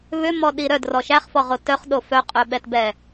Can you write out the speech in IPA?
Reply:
βʏmɔɗi ɾœdrɔ ʃæχfɔʁo tœχɗo fœqʼœɓɛtbɛ

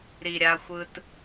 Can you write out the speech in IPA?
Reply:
ɾi˩ɾʲa˨xʷɯ˨t

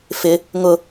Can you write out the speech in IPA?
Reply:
fɪ | ŋʊ

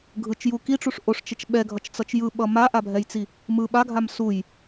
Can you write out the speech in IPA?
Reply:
ɡʱɯt͡ʃju kiʈ͡ʂuʂ ʔoʂt͡ʃet͡ʃ ɓɛɡʱʌt͡ʃt͡sʌt͡ʃ jɯɓʌ maʔabʱɛjt͡si | mɯ ɓaɡʱam suj

